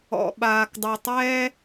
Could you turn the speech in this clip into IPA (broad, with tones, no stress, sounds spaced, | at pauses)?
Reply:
ɔ̰˩ ɓ aː˩ k dˤ ɯ˩ tˤ ɛː˥